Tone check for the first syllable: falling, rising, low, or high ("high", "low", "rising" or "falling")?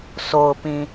low